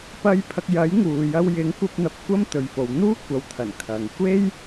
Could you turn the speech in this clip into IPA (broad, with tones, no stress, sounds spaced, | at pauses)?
p ɐ˧ j pʰ ɐ˧ k̚ j ɐ˨˥ j ŋ uː˨ j ɐ˧ w j ɪ˨˥ ŋ kʷ ɐ˧ p̚ n̪ ɐ˨˥ p̚ kʷ ɐ˥ m t̪ ɵ˨˧ ɥ f o˨˧ w n̪ uː˥ kʷ ɐ˨ w t̪ʰ ɐ˨˩ n kʰ ɐ˨ ŋ kʷ e˥ j